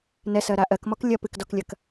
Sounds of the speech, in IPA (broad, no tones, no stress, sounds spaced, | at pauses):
n ɛ s ɜ ɾ a ʔ ɜ k m ɔ k lʲ ɐ p ɨ k d ɔ k lʲ ɐ k